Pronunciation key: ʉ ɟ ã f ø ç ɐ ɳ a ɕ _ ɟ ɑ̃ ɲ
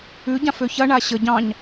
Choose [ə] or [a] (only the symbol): ə